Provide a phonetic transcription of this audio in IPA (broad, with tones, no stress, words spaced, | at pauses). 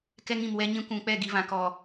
kɛ˦ŋĩ˨mwɛ˦ɲĩ˦ kʷũ˨k͡pɛ˦˨ ɡi˨vã˨ kɔ˨